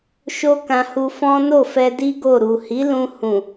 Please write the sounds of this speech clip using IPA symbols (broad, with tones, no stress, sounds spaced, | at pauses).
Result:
ʃ o˦ k ã˧ h u˧ f ɔ̃˦ n o˦˨ f ɛ˧ d i˦ ɡ o˦˨ ɾ u˨ h i˨˦ l ũ˧ h ũ˨